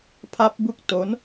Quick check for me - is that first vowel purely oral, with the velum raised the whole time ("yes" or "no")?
yes